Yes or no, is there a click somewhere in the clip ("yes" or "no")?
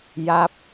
no